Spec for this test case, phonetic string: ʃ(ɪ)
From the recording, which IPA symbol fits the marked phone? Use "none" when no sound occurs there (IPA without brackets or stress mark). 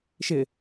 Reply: ɪ